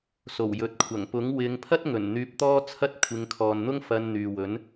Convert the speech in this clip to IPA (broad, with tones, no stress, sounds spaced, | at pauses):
s o˨˩ w j ɵ˨ t̚ kʷʰ ɐ˨˩ ŋ p ʊ˨˥ ŋ w ɪ˨˧ ŋ pʰ ɐ˥ t̚ ŋ ɵ˨˩ n n̪ yː˧ p̚ t̪ ɔː˥ t͡sʰ ɐ˥ t̚ kʷʰ ɪ˨˧ ŋ kʰ ɔː˨ n n̪ ʊ˥ ŋ f ɐ˧ n n̪ yː˨ w ɵ˨˥ n